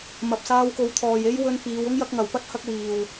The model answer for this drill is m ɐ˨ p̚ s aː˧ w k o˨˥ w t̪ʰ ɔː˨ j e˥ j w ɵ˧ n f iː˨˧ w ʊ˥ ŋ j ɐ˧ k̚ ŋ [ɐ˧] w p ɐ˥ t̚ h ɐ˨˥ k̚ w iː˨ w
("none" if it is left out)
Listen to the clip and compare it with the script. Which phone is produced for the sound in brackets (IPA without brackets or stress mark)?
ɐ˨˩